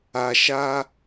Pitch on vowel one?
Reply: low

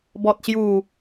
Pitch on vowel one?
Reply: low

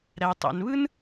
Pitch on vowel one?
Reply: low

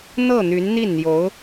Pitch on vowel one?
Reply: falling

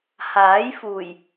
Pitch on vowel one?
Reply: rising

